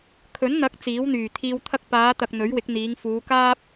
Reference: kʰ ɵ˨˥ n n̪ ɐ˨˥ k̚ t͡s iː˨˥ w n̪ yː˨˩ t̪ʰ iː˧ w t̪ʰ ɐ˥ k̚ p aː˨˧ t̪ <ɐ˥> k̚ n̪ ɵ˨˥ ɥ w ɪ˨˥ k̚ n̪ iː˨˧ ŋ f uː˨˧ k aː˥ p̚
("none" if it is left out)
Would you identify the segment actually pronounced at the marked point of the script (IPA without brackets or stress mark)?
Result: ɐ˨